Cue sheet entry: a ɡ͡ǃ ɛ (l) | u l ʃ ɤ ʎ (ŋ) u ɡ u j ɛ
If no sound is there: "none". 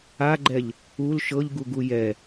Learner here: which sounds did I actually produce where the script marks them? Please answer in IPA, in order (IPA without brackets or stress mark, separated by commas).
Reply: ʎ, ɡ